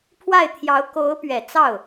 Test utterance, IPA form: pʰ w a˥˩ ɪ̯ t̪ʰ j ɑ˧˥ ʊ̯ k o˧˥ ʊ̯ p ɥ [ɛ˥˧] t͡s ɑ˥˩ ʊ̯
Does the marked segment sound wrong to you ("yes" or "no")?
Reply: yes